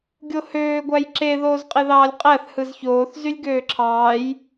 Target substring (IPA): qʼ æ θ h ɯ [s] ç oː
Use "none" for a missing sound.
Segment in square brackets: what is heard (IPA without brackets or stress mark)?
z